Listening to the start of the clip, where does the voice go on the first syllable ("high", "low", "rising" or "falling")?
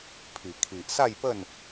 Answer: low